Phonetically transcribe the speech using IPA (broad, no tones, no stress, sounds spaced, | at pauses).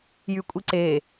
j y kʷʼ i ǀ e